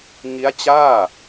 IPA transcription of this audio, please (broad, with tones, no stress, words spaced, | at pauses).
ŋi˦˥a̯t͡ɕaː˥˩